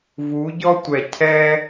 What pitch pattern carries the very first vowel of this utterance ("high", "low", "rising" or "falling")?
rising